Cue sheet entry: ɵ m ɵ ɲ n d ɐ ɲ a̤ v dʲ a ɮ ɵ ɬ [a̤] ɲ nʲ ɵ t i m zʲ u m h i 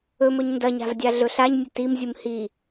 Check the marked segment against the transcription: incorrect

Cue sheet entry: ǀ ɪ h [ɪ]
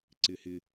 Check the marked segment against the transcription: correct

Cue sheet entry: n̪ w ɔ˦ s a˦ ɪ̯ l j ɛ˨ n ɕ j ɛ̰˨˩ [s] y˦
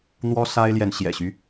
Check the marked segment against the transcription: incorrect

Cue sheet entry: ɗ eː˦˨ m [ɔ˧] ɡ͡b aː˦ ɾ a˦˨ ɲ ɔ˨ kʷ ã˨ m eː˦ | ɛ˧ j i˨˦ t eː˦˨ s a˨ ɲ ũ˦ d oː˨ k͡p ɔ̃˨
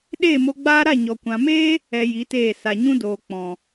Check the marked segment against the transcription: incorrect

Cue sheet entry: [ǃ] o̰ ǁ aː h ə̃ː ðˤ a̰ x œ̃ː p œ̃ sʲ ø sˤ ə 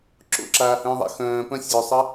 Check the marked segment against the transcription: incorrect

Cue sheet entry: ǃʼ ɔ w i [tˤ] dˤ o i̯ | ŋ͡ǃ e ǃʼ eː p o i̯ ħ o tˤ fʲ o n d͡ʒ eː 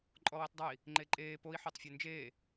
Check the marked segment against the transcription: correct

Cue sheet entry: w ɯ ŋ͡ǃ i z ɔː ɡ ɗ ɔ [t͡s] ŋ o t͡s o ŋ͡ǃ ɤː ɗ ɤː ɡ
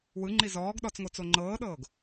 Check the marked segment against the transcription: correct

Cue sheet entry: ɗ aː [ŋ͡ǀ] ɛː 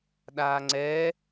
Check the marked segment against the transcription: correct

